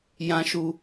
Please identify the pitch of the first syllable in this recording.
high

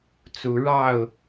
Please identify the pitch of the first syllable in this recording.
rising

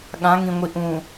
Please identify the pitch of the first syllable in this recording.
rising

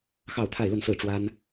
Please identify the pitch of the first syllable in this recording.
falling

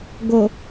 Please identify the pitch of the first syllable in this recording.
low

